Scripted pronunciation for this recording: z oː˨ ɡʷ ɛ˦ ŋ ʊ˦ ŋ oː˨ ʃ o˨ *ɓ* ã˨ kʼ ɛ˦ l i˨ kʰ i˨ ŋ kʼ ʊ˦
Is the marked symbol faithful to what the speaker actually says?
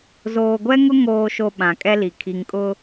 yes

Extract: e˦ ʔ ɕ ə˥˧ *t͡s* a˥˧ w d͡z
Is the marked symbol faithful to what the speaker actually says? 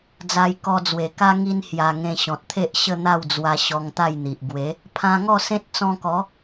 no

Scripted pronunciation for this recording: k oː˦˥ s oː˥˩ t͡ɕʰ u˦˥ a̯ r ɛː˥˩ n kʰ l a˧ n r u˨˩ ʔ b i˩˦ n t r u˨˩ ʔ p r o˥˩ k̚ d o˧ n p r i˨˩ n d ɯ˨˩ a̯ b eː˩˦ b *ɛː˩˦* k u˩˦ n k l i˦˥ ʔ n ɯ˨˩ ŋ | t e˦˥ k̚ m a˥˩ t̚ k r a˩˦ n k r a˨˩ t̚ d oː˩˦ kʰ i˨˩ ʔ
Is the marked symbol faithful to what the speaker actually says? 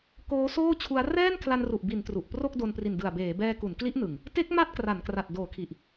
no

